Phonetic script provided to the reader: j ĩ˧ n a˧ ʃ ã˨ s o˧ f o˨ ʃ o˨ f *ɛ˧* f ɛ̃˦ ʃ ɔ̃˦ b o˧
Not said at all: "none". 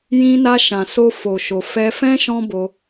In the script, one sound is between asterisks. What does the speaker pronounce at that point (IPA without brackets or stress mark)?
ɛ˧